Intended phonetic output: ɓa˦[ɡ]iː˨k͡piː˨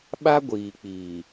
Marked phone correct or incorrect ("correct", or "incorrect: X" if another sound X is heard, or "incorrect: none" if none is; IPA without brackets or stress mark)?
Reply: incorrect: ɡʷ